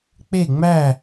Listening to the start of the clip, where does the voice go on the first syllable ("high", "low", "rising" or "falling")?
falling